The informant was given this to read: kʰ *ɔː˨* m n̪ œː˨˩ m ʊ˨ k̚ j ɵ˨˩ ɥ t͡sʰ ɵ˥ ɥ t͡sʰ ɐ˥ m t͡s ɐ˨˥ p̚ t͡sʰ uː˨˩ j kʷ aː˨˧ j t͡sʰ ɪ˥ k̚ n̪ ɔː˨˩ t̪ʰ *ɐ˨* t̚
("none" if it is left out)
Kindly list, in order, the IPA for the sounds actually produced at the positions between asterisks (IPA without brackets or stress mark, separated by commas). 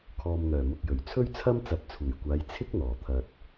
ɔː˨, ɐ˨